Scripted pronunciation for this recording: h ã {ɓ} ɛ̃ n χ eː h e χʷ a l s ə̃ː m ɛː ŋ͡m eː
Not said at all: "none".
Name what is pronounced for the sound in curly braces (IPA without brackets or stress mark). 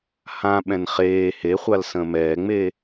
ɓ